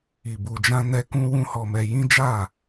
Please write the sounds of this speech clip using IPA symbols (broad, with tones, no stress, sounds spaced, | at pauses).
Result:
i˨ b u˨ d͡ʒ ã˧ n ɛ˧ k ũ˦ w ũ˦ h ɔ˧ m ɛ˧ j ĩ˦ d͡ʒ a˦˨